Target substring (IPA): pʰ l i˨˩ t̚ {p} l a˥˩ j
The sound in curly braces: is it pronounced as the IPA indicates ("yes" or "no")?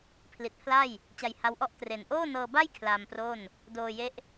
no